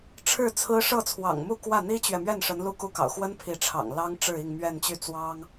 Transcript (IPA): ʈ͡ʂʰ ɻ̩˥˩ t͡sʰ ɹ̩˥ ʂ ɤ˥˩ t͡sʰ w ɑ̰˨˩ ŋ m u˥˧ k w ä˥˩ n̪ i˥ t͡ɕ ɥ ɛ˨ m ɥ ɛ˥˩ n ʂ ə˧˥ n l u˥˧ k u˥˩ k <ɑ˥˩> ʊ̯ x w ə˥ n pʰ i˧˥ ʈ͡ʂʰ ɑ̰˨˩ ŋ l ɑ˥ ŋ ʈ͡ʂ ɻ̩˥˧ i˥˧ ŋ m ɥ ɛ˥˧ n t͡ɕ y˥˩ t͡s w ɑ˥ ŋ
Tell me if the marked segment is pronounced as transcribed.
no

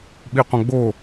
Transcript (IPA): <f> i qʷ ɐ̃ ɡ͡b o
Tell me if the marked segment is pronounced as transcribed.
no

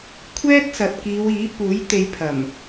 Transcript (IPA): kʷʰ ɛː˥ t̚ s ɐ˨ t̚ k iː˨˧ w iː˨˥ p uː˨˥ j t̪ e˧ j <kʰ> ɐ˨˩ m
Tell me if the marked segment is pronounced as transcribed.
no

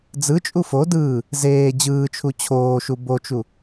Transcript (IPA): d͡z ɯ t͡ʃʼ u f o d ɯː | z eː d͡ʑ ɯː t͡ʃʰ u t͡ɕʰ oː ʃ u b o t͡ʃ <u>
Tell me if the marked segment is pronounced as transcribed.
yes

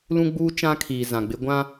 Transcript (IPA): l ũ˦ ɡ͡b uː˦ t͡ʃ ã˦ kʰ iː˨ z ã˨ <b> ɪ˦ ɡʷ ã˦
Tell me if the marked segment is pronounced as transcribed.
no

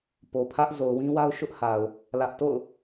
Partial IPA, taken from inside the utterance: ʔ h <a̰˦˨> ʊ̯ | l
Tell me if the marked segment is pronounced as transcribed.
no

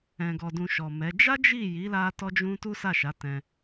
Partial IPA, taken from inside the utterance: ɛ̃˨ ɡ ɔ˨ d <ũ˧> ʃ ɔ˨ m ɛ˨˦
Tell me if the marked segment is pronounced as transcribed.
yes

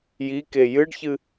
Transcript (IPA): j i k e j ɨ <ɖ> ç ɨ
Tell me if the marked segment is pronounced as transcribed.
yes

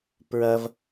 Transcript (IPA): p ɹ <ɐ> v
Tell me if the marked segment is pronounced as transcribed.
yes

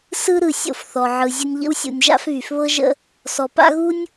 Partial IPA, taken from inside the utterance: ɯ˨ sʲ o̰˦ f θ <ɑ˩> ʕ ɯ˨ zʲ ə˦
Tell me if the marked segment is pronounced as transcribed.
no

